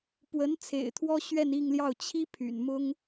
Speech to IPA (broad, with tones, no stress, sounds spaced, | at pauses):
p w ə˧˥ n t͡sʰ ḛ˨˩ ɪ̯ t̪ʰ w ɔ˥ ɕ ɥ ɛ˥˧ n i˥˧ ŋ l j ɑ˥˩ ʊ̯ t͡ɕʰ i˥ pʰ y̰˨˩ n m ʊ˥ ŋ